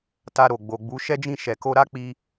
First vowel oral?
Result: yes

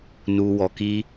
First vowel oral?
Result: yes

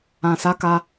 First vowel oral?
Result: no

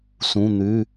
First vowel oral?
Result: no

